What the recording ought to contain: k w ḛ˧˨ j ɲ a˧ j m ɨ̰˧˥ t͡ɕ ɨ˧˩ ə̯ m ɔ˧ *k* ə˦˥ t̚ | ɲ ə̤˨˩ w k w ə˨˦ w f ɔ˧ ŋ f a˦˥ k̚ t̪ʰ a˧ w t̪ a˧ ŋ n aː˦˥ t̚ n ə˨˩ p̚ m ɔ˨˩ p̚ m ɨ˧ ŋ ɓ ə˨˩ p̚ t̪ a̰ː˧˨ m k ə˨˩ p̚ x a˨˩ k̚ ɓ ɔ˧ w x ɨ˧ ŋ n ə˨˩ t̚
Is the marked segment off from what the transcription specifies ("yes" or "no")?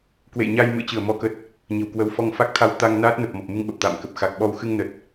no